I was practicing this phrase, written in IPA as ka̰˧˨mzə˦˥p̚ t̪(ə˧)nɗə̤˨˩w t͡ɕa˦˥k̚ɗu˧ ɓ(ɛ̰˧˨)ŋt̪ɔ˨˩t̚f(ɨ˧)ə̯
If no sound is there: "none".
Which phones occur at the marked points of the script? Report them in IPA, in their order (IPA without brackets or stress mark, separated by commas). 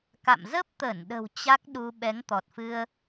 ə˧˩, ɛ˨˦, ɨ˧